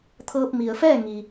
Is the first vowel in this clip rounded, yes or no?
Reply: no